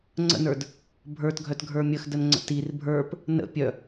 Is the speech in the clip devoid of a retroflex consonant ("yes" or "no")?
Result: yes